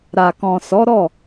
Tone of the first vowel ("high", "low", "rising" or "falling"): low